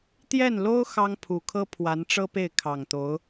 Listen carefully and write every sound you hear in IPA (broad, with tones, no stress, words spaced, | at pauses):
t̪jɛ˥˩nlo˥ʊ̯ xɑ˥ŋpʰu˨˩kʰɤ˥ pʰwa˧˥nʈ͡ʂɤ˥pe˥˩ɪ̯ kʰɑ˨˩ŋt̪o˧˥ʊ̯